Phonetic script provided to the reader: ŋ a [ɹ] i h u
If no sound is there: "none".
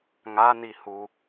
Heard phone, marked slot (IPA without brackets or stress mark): n